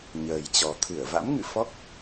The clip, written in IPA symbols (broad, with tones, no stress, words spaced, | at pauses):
ɲəː˨˩jt͡ɕɔ˨˩ t̪ʰɨ˧˩ə̯va̰˧˥mŋɨ̰˧˨ fɔ˦˥k̚